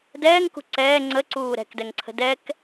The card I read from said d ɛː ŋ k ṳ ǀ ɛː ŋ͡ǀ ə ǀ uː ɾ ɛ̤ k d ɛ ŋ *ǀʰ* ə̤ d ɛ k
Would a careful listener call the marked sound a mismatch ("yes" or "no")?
no